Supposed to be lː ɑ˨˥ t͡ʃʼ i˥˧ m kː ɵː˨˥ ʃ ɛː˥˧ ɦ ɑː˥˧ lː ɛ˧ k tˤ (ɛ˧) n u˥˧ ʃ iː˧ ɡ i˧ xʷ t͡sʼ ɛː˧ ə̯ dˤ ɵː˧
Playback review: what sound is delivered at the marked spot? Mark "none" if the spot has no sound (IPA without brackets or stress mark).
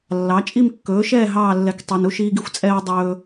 e˧